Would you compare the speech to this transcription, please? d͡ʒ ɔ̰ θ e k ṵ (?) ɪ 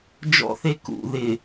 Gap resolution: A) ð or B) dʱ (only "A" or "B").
A